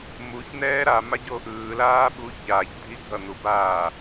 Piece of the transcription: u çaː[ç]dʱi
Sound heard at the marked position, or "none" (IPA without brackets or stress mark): ç